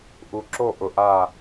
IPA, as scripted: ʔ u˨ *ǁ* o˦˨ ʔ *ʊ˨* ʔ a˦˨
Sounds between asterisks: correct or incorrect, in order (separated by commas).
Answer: correct, correct